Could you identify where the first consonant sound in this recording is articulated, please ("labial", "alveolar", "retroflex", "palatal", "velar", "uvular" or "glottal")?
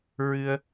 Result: alveolar